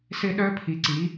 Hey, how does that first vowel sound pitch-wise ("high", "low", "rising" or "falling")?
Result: falling